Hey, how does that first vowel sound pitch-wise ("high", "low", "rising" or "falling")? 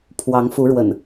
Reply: rising